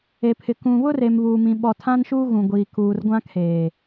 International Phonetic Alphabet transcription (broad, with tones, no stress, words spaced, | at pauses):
e˨pʰɪ˨ kũ˨βʊ˦re˨m βuː˨mĩ˨ ɓɔ˨tʰã˦nʃuː˦ ɣũ˨ɡʷiː˨ kuː˨rɡʷã˦kʰeː˨